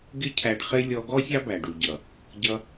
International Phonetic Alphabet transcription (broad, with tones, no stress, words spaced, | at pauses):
ɡɪ˦cʰæ˧ɖχɪ˦ lʲɔ˧ɡɔ˦ sʲɑ˦bæ˨ɖu˨ɟʌ˨ | ɟʌ˧